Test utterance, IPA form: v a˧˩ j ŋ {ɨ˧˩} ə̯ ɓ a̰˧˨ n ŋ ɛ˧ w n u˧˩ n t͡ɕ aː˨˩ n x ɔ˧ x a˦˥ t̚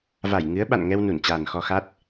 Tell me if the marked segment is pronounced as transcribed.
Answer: no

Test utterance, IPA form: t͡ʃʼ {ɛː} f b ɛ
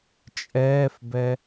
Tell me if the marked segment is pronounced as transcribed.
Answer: yes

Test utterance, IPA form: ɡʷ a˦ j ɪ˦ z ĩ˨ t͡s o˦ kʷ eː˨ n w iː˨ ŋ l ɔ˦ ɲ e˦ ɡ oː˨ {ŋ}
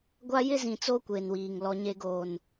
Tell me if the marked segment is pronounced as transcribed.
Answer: no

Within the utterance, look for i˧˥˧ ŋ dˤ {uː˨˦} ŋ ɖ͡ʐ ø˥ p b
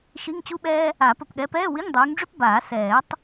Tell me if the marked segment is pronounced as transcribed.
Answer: yes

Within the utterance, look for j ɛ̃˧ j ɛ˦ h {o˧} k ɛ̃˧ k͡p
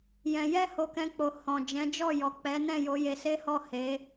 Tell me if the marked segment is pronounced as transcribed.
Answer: yes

